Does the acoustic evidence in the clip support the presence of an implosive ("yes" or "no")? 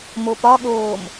yes